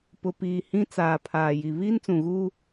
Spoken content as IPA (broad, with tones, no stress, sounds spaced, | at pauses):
p ʊ˨ p iː˨ h ĩ˦ t͡s aː˨ pʰ aː˨ j i˨ β iː˦ n t͡s ũ˨ ɣ uː˦